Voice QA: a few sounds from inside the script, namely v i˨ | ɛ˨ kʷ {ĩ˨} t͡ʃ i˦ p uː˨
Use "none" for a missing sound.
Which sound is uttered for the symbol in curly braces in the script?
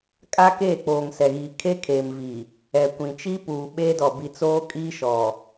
ĩ˨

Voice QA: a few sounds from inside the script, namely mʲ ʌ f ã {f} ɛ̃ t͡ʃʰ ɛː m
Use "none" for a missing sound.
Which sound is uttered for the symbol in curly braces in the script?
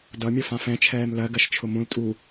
f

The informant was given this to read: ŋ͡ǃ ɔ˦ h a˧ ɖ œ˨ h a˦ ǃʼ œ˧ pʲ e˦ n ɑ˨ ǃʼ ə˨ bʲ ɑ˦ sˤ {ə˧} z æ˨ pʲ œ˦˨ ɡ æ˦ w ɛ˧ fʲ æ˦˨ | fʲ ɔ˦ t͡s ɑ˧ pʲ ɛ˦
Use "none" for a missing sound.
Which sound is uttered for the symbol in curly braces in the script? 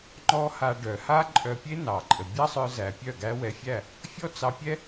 œ˧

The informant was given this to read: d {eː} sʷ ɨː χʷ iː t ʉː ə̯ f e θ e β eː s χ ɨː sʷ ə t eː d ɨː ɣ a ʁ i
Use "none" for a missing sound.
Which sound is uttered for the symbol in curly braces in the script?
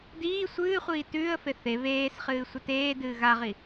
iː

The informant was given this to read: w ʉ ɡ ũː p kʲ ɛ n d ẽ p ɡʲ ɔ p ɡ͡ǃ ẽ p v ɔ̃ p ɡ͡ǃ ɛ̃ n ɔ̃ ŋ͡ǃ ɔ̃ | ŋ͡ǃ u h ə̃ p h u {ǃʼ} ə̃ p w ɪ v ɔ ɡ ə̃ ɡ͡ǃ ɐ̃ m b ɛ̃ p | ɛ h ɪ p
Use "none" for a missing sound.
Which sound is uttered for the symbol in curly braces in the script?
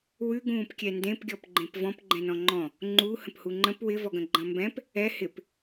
ŋ͡ǃ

